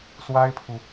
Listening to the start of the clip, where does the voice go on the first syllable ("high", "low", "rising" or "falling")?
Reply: high